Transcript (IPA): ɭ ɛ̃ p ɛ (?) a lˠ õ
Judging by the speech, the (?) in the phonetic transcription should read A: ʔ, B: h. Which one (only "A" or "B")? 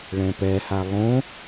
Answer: B